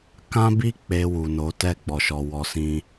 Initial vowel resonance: nasal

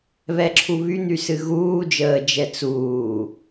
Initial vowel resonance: oral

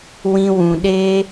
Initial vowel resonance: nasal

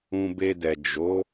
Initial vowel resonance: nasal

